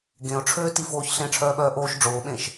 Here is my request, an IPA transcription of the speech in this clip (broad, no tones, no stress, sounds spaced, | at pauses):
ɡ ẽ ʊ̯ ʈ͡ʂʰ øː t i f oː ç ɬ ẽ ʈ͡ʂʰ œː ɓ œː ʔ oː ʃ ɖ͡ʐ oː ɓ ẽ ʃ